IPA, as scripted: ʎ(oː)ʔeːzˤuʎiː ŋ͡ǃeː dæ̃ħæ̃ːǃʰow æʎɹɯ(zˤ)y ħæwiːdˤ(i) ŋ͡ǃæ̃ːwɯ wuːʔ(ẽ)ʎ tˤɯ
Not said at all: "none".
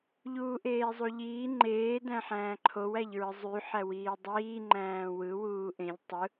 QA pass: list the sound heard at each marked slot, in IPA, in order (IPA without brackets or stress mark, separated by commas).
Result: uː, zˤ, iː, ẽ